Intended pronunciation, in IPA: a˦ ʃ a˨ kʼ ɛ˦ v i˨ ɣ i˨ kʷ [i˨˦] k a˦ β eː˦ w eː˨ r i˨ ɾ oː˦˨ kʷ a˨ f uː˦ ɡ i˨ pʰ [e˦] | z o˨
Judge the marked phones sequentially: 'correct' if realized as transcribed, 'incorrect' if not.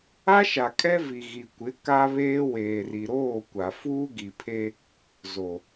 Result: incorrect: ɪ˨˦, correct

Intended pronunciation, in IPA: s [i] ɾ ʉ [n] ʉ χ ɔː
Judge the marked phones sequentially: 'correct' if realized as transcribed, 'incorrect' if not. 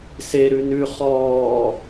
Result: incorrect: e, correct

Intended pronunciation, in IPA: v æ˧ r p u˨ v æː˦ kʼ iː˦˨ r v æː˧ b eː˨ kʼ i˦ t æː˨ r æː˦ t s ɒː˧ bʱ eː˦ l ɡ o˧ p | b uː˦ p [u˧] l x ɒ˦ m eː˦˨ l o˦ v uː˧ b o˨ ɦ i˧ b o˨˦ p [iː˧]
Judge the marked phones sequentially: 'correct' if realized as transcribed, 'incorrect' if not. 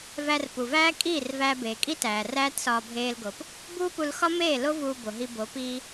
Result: correct, incorrect: iː˦

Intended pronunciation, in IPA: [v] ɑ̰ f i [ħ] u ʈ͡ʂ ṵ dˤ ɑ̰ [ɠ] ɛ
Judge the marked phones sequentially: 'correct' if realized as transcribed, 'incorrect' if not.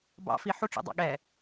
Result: incorrect: b, correct, correct

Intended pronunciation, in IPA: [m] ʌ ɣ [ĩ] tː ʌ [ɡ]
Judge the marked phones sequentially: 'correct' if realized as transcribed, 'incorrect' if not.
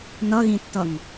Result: incorrect: n, correct, incorrect: ŋ

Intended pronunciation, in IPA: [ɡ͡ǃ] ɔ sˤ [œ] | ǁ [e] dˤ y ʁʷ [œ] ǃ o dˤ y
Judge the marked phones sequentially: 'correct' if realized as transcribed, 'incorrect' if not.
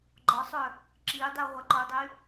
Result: correct, correct, incorrect: i, incorrect: ɛ

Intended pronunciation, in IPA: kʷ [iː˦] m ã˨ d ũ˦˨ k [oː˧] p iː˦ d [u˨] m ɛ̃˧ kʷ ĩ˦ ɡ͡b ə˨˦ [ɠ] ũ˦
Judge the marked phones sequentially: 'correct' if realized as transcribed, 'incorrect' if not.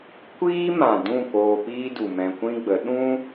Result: correct, correct, correct, incorrect: ɗ

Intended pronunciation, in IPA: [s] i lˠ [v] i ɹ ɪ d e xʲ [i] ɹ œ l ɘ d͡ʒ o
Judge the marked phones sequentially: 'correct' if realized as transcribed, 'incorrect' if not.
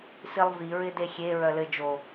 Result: correct, correct, incorrect: e

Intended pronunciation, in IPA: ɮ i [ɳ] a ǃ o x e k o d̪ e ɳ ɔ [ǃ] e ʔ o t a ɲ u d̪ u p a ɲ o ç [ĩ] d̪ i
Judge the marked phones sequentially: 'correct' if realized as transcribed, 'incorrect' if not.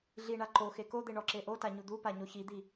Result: correct, incorrect: ǁ, incorrect: i

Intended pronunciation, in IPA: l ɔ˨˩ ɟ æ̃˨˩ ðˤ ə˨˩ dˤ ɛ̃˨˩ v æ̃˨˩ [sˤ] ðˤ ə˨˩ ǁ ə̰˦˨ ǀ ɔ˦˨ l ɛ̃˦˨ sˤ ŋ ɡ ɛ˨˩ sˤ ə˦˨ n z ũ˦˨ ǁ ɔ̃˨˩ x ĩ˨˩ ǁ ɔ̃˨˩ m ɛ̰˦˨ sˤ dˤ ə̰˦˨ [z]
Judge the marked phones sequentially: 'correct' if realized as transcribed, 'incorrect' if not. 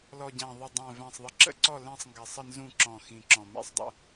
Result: correct, incorrect: none

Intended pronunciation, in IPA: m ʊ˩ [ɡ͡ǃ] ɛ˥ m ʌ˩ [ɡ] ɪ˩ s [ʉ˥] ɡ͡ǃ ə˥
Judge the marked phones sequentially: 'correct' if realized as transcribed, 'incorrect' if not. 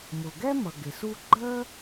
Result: incorrect: ɡ, correct, incorrect: u˥

